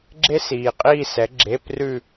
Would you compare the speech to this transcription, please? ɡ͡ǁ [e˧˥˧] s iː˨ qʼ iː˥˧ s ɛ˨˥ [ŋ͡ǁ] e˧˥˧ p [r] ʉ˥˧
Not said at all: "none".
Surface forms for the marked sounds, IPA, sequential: e˥, ɡ͡ǁ, r

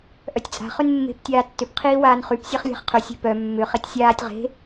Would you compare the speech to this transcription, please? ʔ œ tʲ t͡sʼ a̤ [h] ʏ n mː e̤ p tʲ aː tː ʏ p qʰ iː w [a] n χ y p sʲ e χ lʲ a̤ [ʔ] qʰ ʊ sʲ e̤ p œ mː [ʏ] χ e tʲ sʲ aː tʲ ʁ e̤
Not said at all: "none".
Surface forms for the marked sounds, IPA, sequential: χ, aː, χ, ʏ

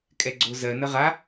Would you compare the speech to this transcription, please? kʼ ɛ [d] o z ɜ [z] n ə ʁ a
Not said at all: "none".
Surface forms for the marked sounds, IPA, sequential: ɡ͡ǀ, none

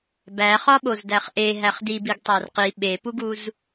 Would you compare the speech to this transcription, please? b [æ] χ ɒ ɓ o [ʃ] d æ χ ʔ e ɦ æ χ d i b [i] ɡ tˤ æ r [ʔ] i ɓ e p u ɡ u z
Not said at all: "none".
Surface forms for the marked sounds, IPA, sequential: æ, z, i, q

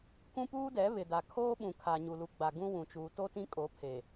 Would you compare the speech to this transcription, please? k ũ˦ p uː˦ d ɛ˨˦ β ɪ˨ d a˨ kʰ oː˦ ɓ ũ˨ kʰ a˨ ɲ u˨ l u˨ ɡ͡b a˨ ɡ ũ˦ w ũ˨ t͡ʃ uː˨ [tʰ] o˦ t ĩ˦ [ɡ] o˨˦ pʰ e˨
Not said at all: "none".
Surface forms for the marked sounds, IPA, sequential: t, kʼ

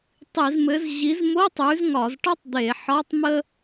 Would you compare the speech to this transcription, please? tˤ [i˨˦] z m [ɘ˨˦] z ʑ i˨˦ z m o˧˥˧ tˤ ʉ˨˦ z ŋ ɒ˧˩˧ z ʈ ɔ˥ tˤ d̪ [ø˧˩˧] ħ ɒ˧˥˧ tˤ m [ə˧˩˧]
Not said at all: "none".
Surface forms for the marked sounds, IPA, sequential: i˧˩˧, ɘ˨˦, e˧˩˧, ə˥

